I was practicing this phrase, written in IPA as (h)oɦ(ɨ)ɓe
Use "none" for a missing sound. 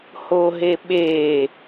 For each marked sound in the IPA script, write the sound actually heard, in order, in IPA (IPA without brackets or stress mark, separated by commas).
h, e